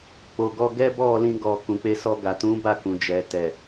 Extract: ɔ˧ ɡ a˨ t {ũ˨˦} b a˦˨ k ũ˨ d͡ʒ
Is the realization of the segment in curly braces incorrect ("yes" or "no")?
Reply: no